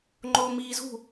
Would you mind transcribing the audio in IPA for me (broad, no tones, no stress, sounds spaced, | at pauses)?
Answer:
ŋ͡ǃ oː m iː z ṳ